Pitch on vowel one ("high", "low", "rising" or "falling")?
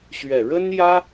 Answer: low